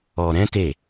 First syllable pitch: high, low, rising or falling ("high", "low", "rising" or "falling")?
low